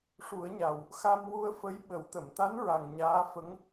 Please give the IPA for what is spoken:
ʂ u˨˩˦ ə̯ ɲ a˨˩ w | x a˧ m w u˧ ə̯ f ə˧˥ j ɓ ə˨˩˦ w t̪ ə˨˩˨ m t̪ a˧˥ n ɹ a˨˩ ŋ ɲ aː˧˥ f ə˧˥ ŋ

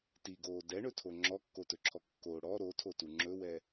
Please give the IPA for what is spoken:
t i ɡ oː d ɛ ɳ ɵ tʰ o ŋ͡ǁ ɔ kː o t ɵ ǁʰ ɔ kː o ɽ ɔ ɾ o tʰ o t u ŋ͡ǁ ɵ w ɛ

